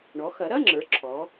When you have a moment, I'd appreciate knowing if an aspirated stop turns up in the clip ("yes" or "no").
yes